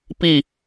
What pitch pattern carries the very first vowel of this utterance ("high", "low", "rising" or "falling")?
falling